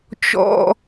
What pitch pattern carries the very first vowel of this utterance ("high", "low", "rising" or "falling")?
high